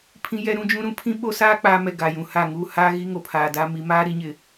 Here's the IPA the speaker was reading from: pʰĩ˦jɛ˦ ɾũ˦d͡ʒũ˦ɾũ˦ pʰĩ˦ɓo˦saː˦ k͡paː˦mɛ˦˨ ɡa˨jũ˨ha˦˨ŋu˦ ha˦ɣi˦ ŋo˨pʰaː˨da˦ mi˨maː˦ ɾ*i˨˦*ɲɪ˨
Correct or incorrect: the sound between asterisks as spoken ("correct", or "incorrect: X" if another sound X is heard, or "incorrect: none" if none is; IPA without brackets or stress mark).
correct